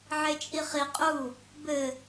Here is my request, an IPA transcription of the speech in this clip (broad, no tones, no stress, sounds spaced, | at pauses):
ʕ e t͡ʃʼ i χ i qʼ u | b ɘ